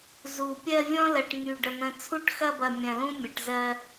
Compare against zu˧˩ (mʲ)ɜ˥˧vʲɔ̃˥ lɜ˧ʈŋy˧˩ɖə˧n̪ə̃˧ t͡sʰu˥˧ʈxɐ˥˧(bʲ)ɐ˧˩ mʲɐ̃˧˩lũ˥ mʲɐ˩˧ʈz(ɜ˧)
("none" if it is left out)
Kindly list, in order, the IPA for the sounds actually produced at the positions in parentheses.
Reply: pʲ, b, ɜ˧

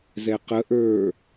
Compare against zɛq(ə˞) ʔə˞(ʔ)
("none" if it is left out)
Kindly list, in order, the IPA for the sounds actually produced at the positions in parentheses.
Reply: ə, none

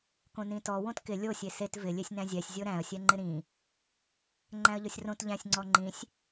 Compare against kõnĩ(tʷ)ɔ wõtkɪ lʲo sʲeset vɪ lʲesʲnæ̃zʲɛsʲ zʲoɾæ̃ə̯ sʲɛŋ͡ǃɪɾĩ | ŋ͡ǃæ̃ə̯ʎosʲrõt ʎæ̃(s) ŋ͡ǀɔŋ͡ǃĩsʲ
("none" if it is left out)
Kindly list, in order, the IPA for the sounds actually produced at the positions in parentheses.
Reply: t, sʲ

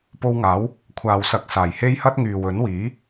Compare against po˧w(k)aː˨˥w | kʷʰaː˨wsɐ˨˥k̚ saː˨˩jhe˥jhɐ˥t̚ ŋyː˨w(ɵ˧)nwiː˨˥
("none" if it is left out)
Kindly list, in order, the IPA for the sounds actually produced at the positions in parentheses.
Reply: ŋ, ɵ˨˥

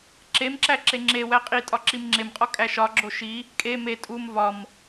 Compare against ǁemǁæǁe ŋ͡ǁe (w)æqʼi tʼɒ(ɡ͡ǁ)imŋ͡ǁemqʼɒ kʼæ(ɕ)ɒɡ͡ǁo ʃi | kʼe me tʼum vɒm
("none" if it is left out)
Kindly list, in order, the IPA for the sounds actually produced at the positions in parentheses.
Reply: w, ǁ, ʃ

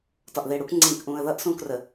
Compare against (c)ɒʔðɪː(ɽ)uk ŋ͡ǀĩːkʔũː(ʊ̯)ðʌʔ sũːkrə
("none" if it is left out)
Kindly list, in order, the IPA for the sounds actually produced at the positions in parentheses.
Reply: t, ɽ, ə̯

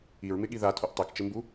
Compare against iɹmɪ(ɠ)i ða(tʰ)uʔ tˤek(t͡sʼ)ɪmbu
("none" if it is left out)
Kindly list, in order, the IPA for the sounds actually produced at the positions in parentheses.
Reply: ɠ, tʰ, t͡ʃ

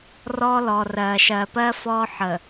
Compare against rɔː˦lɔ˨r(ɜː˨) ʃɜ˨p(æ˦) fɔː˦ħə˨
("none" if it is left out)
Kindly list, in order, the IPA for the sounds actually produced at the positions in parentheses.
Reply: ɜː˨, ɜ˦

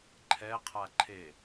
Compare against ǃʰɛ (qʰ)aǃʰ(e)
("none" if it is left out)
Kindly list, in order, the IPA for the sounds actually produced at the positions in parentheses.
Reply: qʰ, e

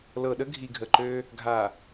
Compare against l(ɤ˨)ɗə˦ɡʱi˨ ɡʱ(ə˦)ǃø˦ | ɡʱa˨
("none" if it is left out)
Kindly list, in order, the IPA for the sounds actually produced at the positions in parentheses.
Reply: ɤ˨, ə˨

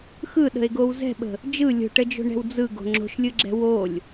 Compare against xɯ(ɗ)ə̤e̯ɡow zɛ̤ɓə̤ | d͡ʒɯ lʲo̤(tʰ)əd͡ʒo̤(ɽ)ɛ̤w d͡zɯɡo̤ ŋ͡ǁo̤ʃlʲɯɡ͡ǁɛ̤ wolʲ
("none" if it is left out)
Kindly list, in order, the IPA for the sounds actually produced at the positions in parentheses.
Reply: ɗ, ʈ, ɳ

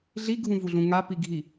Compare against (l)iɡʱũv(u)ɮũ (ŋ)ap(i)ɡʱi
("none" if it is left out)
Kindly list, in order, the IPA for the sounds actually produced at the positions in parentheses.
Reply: ɮ, u, ŋ, i

